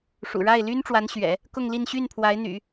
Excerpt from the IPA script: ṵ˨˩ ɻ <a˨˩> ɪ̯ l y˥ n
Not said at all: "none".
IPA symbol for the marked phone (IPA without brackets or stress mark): a˥˩